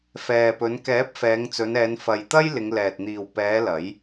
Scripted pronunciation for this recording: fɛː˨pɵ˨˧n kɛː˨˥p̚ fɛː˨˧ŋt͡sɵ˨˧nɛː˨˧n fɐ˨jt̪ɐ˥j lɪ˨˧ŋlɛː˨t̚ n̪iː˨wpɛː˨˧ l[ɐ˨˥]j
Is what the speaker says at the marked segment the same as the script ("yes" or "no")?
yes